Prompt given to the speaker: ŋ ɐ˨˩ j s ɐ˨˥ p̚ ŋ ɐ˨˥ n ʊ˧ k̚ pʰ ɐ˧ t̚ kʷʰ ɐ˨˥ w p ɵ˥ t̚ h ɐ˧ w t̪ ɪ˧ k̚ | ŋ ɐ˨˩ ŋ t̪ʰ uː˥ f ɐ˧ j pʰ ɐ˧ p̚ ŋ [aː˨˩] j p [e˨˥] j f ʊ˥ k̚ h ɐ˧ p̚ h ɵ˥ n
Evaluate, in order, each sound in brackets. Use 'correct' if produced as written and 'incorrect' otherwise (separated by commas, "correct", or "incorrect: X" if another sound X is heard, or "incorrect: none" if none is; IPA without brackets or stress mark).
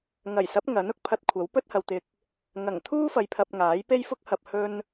incorrect: aː˨˥, incorrect: e˥